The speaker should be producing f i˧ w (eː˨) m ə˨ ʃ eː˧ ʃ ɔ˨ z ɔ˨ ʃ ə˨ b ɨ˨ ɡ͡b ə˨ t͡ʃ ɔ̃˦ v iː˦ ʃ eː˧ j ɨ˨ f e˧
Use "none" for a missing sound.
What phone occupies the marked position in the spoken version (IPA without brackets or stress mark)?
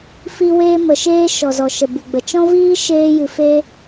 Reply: eː˧